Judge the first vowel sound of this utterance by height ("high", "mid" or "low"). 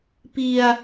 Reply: high